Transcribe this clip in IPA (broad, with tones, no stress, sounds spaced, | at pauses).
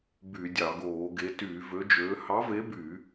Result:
b y˧˩˧ dʲ ɑ˧˩˧ ɡ oː˧˩˧ ɡ e˨˥ t yː˧˩˧ v ø˨˥ d͡ʒ øː˨˥ h ɑ˨˥ v e˨˥ b y˧˩˧